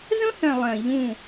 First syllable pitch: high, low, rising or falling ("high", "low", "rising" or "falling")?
high